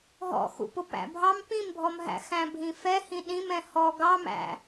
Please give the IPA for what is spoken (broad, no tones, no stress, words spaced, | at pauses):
ɦɔ̰xṵpʊ pæ̰bʱɑm pĩmbʱɔmɦæ̰ xæ̃bʱĩfɛ hĩɗĩm ɛ̃hɔ ɡɑmæ̰